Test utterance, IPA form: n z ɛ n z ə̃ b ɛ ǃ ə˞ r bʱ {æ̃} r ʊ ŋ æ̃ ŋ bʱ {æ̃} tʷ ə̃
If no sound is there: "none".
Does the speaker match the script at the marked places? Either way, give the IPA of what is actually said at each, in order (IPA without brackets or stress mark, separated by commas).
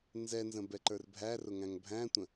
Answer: æ, æ̃